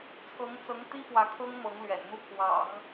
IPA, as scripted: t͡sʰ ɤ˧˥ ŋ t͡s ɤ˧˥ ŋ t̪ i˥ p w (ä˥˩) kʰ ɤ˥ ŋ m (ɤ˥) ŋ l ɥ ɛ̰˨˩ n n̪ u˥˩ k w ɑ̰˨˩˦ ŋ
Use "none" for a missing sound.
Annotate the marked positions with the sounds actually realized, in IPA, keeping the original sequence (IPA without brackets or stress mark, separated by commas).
ä˧˥, ɤ˧˥